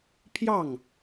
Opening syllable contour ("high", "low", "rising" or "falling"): falling